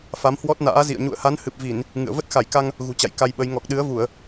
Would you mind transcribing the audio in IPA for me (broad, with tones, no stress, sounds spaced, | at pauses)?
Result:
f a˨˦ m h w ɔ˦˥ t̚ n a̰ː˧˥ z ḭ˧˨ ə̯ ɲ ṵ˧˨ ə̯ h a˨˦ n h ɨ˨˩ p̚ v i˧˩˨ n | ŋ ɨ̰˧˨ ə̯ v ə˦˥ t̚ x a˧˩ j k a˧ ŋ | ɣ ṳ˨˩ t͡ɕ a̰˧˨ j k a˧ j ɓ ə˨˦ j ŋ ɔ˨˩ k̚ ɗ ɨ˨˦ ə̯ v u˧˩˨ ə̯